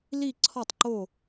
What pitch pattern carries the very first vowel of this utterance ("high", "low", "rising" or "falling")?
falling